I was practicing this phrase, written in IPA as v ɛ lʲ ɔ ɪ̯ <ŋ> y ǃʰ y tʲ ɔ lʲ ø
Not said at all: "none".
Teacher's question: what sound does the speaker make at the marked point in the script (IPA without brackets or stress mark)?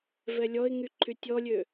ŋ